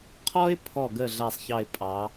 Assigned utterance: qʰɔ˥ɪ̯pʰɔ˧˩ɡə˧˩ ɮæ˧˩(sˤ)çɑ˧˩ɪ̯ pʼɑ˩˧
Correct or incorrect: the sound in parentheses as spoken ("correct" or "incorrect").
correct